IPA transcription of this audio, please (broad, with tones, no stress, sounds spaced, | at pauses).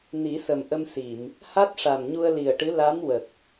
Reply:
n i˨˩˦ s ə˨˩ m ʔ ə˧ m s i˨˩˨ m | h a˦˥ t̚ ʂ a˨˩ m ɲ u˧ ə̯ l i˨˩ ə̯ ʈ ɨ˧˥ l a˧˥ m w ə˨˩ k̚